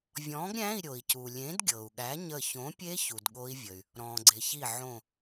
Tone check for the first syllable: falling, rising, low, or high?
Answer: rising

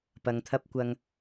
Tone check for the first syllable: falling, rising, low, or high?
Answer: low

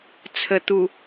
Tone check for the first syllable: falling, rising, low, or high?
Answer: low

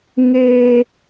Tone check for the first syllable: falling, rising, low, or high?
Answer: high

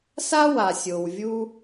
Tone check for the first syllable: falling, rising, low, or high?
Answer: high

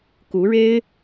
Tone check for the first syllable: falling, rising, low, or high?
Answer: rising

